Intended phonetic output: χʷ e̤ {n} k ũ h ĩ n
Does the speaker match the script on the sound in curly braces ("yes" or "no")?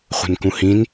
yes